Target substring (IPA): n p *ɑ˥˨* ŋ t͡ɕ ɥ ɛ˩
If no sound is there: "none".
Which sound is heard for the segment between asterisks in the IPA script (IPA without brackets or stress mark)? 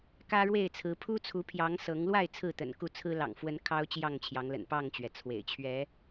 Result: ɑ˥˨